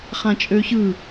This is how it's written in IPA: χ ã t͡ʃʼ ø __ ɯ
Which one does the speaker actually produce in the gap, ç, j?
ç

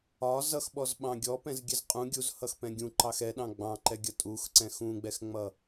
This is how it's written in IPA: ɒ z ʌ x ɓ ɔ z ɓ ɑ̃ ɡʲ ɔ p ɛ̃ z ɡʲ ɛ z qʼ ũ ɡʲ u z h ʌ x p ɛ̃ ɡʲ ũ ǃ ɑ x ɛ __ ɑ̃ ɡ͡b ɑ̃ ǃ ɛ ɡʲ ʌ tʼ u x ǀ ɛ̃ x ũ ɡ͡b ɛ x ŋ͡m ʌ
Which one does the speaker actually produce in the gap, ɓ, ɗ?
ɗ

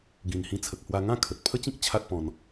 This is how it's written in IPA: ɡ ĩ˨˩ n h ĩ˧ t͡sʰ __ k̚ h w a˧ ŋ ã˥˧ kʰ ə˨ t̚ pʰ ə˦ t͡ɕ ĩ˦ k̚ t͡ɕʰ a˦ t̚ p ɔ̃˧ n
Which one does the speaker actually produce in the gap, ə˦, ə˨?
ə˨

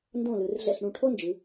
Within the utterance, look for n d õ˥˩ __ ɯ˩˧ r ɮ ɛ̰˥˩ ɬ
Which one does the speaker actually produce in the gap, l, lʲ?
l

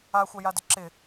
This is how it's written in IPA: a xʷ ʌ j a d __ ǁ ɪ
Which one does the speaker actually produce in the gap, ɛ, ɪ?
ɪ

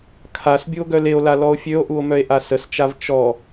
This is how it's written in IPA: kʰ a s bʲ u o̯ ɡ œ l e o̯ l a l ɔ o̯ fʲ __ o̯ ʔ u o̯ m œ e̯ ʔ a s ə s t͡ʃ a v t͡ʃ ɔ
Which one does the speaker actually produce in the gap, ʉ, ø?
ø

